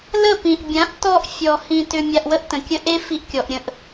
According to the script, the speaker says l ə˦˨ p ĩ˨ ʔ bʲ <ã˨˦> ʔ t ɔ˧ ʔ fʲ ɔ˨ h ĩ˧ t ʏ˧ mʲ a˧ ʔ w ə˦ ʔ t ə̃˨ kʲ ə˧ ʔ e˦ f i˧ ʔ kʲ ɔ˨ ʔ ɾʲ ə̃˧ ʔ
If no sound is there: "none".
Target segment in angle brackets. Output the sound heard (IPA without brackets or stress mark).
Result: ã˨˦